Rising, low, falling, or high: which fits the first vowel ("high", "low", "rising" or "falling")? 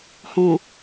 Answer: low